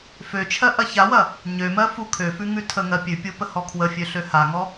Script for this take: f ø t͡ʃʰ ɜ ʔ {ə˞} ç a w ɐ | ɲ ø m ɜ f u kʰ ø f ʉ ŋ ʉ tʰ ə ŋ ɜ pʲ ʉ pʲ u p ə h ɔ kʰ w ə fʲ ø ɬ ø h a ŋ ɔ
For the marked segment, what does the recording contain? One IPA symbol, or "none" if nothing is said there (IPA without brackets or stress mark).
ɐ